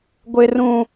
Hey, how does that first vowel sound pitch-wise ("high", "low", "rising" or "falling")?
low